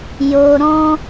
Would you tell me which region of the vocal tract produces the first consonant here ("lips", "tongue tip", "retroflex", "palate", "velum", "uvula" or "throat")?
palate